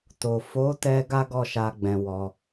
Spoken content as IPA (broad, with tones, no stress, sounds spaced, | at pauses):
t o˨ f o˨˦ t ɛ˧ ɡ a˦ ɡ ɔ˦˨ ʃ a˧ ɡ͡b ɛ̃˧ w ɔ˧